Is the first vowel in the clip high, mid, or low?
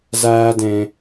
low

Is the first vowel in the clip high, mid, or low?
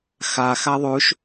low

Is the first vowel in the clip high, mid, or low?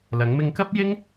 low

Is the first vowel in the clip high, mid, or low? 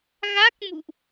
low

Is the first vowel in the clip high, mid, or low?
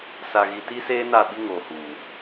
low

